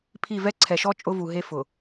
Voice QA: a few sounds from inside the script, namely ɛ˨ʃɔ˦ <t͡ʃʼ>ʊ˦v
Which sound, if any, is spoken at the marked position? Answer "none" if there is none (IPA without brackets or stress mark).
t͡ʃʼ